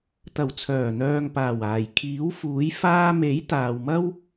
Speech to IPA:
t̪ ɐ˨˩ w t͡sʰ œː˨˩ n̪ œː˨ ŋ p aː˨˩ w aː˨˩ j kʰ iː˨˥ w f uː˨˥ j f aː˧ m e˨˥ j t̪ aː˨ w m ɐ˥ w

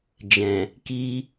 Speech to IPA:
d͡ʒ ɛ̃˨ | k i˦

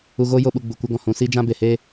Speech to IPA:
u˧ ɣ o˦ j o˦ ɓ u˧ ɡ͡b u˨ kʷ ə˧ ɡ ɔ̃˨ h ũ˨ s iː˦ d͡ʒ ã˦ b e˨ h e˦

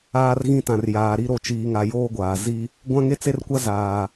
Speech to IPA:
aː˦ r ɣ ĩ˦ t ã˨ r j aː˨ ɾ i˦ ɾ o˨ t͡ʃ iː˨ ŋ a˨ j oː˦ ɡʷ aː˨ z i˦ | ɡʷ ã˦ ŋ e˦ t͡s e˦ r kʷ a˦ z aː˨

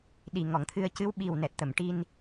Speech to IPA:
ɗ i˨˩ ŋ ɔ˨˩˨ ŋ t̪ʰ ɨ˧ ə̯ c ɨ˧˥ w ɓ i˨˩ w n ɛ˨˩ t̚ t̪ ə˨˩˨ m ʈ i˧ n

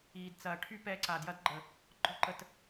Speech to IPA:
iː˨ d t͡s ɐː˨ ʈʰ y˦ p ɛ˧ ǀ a˨ d j ɐ˦ d ɡ͡ǃ ə˨ | ɡ͡ǃ ɔ˦ ǃ ə˧ t

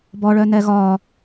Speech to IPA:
b ɔ ɭ œ n ɛ ɣ ɒ

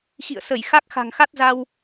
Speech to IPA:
x ḭ˧˨ ə̯ s ə˧˩ j x a˦˥ k̚ x a̤˨˩ ŋ x a˦˥ t̚ z a˧ w

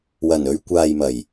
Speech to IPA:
w ɐ˨˩ n ɵ˧ ɥ kʷ aː˨ j m ɐ˨˩ j

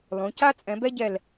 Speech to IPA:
lˠ ũ˩˧ c a˥ t͡sʼ ɛ̃˩˧ b ɛ˥ ɟ ɛ˧˩ l

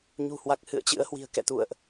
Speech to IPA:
ɲ ṳ˨˩ h w a˨˩ k̚ h ɨ̰˧˨ ə̯ t͡ɕ ɨ̰˧˥ ə̯ h w i̤˨˩ ə̯ k ɛ̰˧˨ t̪ ṵ˧˨ ə̯ ʔ

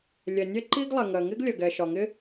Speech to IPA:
lʲ ɛ˩ nʲ ɛ˥ ǃ i˥ ɡ lˠ ɛ˩ ŋ ɜ˩ ŋ ɪ˥ ɡ lʲ ɜ˩ ɡ ɛ˩ ʃ ɒ˩ ŋ ɪ˥

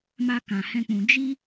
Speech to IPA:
m a˧ k ã˨ h ɛ̃˧ k͡p ũ˨ d͡ʒ i˧

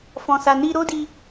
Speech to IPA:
f ɔ̃˨ s a˨ n i˧ ɾ o˦ d i˧

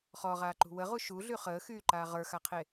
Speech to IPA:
χ ɔ ʁ aː ǃ ṳ w ə ʁ u ʃ u ɮ y χ əː x yː ǃ aː ʁ ə˞ x a qʰ e

